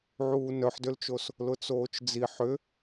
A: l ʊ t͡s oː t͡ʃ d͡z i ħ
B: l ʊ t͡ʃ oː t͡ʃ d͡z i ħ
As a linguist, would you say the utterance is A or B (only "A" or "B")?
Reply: A